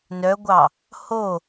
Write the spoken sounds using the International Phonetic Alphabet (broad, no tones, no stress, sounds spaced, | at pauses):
n œ ɡʷ ɑ | h o